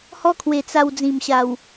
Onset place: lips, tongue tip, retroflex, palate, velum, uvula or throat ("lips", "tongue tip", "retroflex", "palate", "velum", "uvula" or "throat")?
throat